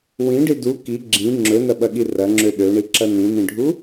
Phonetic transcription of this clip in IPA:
w ĩ ɖ i d u k i ɡ͡ǁ ĩ ŋ͡ǁ ɵ n ɐ ɓ ɐ ɠ i r ɐ ŋ͡ǁ ø ɗ ø ɳ i ǁ ɐ n ĩ n ĩ ɖʱ u

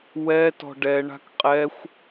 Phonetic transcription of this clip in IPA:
w ɛ t ɔ̤ ɖ ɛ ɳ a̤ k qʼ ɛ xʷ

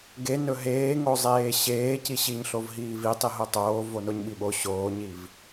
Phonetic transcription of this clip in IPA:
ɡ e n ɵ ɦ eː ŋ o zˤ eː ɕ eː c i ɕ i ɲ ɬ o v ɦ iː v i tˤ i ɦ o tˤ oː v o n o ɲ ɓ i ɓ o ɕ oː ɲ i v

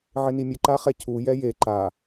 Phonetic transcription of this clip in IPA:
ʕ ɪ n i mʲ ʊ ǃ a χ ɛ cʰ u j ɛ j e ǃ a

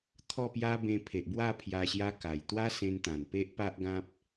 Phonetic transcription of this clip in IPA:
t̪ʰ ɔ˥˧ p j a˦ b ẽ˧ pʰ e˨ ʔ b w a˥˧ pʰ j a˧ ɕ j a˦ k a˨˩ j t̪ w a˦ s ẽ˧ n t̪ ã˨˩ n p e˦ ʔ p a˦ ʔ ɡ ã˦ p̚

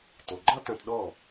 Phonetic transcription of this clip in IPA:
t o˩ ɡ͡ǃ ɒ˥ t ɐ̃˧ t ɗ ɔ˥˩

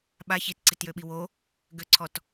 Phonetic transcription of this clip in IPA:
ɓ a ç i t ǀ i t j ø ɓ i w o | ɡ ø ǀʰ ɔ t

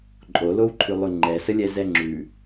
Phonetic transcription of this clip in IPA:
ǃʼ o l o w ǃʰ ʉ lˠ ʉ ŋ͡ǃ ɛ s ə lʲ ɛ z ɛ ŋ͡ǁ ʉ

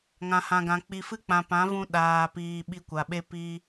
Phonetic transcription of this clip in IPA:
ŋ ã˨ h ã˨ ɡ ã˨ k͡p i˨ f ɨ˧ k͡p ã˨ p ã˨˦ v ũ˧ ɗ aː˨ p iː˨ ɓ i˧ kʷ a˨ ɓ e˦ p i˦

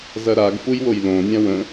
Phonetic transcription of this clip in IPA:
z ɐ ɾ a ɡ f u j w o j l õ nʲ ã w ə̃

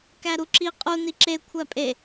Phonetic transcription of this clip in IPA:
k æ ɾ u ǁ i qʼ u n i ǁ e kʷʰ æ pʼ e

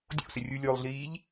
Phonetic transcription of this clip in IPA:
dʲ o̰ s ɪ rʲ u lʲ o lˠ ɮ iː ʎ

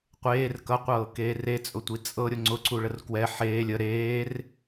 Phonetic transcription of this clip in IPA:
qʷ eː r k ʌ qʷ ɤː k eː r e t͡sʼ ʊ tʷ i t͡sʼ ɤ ɾʲ ʊ ŋ͡ǀ ʊ ǀ u ɭ ə r k w ɛ ħ eː lʲ ə ɾ eː r

